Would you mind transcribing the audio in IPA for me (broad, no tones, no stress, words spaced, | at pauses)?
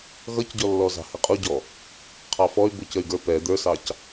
ɣʌcɟɔlːɔzɑ̤ hɪqʼuɟɔ | qʰɑfɔy̯ bʊcəy̯ɡə˞ pɛ d̪ə˞sɑc